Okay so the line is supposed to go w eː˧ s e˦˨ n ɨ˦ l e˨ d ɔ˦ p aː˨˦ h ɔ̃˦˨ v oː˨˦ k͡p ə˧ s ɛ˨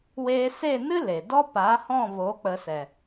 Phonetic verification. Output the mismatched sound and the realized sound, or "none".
none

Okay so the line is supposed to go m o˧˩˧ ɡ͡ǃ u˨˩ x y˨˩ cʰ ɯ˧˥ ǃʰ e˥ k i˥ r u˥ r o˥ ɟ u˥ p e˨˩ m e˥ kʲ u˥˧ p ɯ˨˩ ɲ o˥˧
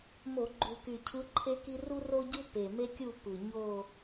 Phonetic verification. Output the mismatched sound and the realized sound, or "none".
x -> k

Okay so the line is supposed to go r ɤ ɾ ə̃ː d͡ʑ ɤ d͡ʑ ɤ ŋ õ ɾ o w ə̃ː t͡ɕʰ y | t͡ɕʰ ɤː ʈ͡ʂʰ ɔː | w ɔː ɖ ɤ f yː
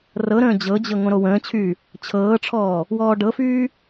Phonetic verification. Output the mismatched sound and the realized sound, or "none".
none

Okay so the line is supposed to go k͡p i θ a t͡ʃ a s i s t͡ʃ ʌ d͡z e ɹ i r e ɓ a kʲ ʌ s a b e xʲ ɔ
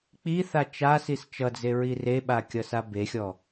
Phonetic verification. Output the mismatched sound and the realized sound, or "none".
none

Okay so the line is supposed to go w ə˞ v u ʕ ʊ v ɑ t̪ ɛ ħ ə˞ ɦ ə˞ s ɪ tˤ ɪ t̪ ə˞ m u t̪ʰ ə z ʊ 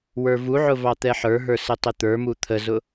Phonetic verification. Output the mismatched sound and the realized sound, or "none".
none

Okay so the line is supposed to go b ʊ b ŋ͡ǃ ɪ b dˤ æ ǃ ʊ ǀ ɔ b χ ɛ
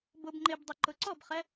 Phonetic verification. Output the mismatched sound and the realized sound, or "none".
æ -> ɛ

